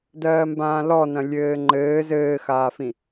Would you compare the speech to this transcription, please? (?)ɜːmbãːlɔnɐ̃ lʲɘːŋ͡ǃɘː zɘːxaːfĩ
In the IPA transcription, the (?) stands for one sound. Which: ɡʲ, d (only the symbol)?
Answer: d